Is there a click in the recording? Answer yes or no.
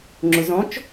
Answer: yes